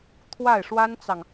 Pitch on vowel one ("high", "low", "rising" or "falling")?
falling